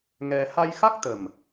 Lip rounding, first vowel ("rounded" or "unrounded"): unrounded